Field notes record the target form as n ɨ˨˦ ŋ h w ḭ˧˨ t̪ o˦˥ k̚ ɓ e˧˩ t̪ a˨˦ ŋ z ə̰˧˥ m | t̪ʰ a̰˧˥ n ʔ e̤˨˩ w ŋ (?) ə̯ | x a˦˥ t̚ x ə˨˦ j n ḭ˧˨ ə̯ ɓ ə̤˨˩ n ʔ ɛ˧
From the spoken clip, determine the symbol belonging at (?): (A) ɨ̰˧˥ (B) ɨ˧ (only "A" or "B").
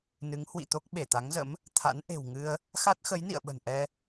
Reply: B